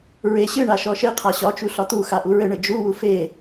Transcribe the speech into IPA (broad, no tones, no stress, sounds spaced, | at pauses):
ɹ e ɕ ɨ ɳ a ʃ ɔ ʃ e qʰ a ɕ ɒ t͡ʃ u ɬ ɒ t̪ u x a ʔ u ɹ ɘ ɳ ɘ d͡ʒ u w u f e